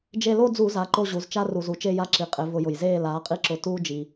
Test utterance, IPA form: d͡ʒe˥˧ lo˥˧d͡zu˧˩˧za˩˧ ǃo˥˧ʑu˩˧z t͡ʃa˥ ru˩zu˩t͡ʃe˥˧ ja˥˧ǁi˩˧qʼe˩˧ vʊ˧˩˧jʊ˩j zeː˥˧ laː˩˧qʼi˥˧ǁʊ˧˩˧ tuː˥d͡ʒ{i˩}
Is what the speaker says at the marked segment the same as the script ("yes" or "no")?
yes